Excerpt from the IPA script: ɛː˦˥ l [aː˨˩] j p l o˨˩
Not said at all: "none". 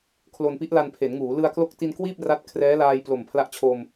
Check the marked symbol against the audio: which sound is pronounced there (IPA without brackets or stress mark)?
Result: aː˧